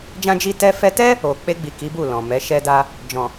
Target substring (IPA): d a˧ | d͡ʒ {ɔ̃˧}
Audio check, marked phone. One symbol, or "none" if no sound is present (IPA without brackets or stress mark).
ɔ̃˨